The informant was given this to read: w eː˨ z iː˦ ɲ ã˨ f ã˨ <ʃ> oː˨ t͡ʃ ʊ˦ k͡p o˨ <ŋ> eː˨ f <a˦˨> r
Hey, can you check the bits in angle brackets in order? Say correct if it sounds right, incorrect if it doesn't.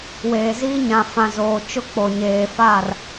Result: incorrect: z, incorrect: ɲ, correct

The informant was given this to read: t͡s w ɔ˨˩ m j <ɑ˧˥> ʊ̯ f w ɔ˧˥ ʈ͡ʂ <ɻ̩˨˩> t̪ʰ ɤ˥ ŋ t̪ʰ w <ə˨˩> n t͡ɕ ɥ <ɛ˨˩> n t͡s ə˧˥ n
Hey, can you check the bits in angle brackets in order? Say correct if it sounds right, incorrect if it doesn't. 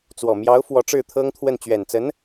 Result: correct, incorrect: ɻ̩˥˩, incorrect: ə˥˩, correct

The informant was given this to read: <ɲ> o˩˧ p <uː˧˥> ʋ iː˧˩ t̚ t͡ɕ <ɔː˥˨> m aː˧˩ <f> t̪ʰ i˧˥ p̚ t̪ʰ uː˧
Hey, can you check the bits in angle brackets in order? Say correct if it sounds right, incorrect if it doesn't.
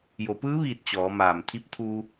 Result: incorrect: j, incorrect: ɯː˧˥, incorrect: ɔː˩˧, incorrect: m

